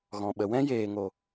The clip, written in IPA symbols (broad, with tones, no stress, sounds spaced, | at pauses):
ɣ ɔ̃˨ ɓ ə˨ w ɛ̃˦ j eː˧ ŋ o˧